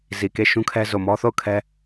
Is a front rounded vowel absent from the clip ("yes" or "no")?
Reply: yes